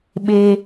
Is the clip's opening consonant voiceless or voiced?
voiced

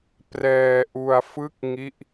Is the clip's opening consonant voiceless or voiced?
voiceless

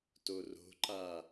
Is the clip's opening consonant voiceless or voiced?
voiceless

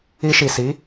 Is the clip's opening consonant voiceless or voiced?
voiceless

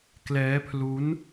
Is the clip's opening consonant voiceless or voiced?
voiceless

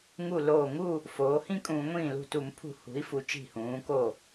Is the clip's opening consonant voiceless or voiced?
voiced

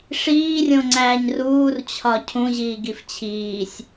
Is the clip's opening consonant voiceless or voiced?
voiceless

